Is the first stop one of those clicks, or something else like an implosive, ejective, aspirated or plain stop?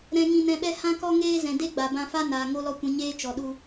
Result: implosive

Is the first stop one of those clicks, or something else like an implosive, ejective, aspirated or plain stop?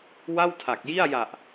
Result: aspirated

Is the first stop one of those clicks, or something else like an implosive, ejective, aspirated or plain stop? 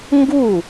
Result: plain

